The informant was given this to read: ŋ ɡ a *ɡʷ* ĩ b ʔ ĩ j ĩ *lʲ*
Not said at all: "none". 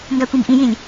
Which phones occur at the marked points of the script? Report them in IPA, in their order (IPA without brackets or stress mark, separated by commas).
kʷ, lʲ